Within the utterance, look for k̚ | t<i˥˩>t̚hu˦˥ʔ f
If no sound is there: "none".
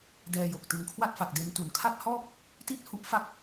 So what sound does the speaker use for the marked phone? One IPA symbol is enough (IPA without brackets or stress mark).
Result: i˥˩